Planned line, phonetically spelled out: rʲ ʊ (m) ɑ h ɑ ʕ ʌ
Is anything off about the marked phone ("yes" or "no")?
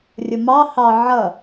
no